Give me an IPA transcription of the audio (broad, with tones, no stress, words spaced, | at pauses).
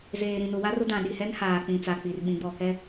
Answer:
zeː˨ɾĩ˨nʊ˨wa˦r ʊ˦dã˨ɗi˨hɛ˦n haː˨k͡pĩ˨t͡sa˨k͡pi˨r ɓĩ˨˦ɡ͡bɔ˨kɛ˦